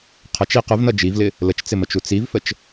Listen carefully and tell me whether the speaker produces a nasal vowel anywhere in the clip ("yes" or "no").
no